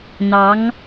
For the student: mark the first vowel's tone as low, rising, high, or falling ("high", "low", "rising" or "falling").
rising